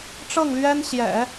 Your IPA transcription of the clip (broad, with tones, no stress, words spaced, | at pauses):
ʈ͡ʂɤ˥˩ŋlɥɛ˥n ɕjɛ̰˨˩˦